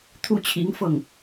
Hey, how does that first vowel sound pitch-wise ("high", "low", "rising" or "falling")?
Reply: high